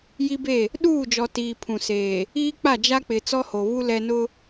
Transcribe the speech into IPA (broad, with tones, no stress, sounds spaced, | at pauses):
j i˦ b e˦˨ | ɗ uː˦˨ d͡ʒ ɔ˨ t iː˨ pʰ ũ˨ s eː˨ | iː˦ k͡p a˦˨ d͡ʒ a˦ k͡p ɪ˨ t͡s ɔ˦ h o˨ β u˦ l ɛ˦ n ʊ˦